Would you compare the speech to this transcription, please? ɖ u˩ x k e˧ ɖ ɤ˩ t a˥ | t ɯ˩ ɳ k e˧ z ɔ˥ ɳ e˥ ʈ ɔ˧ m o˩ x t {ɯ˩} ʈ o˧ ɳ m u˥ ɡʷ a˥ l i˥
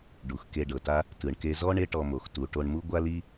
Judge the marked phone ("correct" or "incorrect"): incorrect